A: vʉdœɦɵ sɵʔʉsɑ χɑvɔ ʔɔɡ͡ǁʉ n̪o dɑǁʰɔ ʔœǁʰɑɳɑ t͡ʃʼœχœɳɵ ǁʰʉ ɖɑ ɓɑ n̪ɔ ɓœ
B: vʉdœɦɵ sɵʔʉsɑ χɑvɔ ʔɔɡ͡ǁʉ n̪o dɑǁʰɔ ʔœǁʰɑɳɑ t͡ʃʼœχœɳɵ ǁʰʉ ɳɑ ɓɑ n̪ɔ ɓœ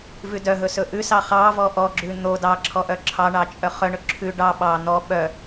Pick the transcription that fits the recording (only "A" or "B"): A